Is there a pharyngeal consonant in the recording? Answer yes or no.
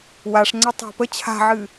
yes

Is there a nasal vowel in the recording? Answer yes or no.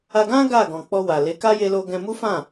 yes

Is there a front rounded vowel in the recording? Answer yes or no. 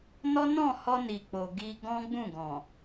no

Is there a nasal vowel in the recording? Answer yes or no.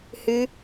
no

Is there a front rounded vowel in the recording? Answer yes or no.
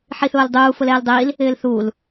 no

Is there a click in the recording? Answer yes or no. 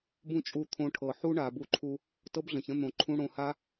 yes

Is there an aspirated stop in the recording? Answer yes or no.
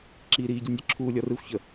yes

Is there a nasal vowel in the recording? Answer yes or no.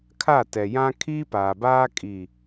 yes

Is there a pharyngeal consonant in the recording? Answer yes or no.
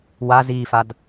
no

